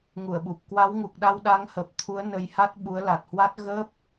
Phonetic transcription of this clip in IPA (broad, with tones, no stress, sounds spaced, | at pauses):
ŋ u˧˩ ə̯ ɓ u˨˩ p̚ k w a˨˦ w ŋ u˨˩ k̚ ɗ a˧ w ɗ a˨˦ ŋ h ə˨˩ p̚ t̪ʰ u˨˦ ə̯ n ə˧ j h a˦˥ t̚ ɓ u˨˦ ə̯ l a˨˩ t̚ h w a˦˥ t̚ ɣ ə˦˥ p̚